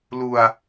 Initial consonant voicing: voiced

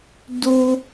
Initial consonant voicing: voiced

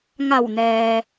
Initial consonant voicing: voiced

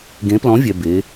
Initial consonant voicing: voiced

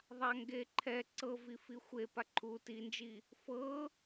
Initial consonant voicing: voiced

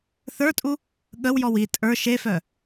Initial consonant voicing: voiceless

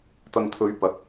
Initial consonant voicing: voiceless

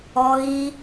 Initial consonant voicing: voiced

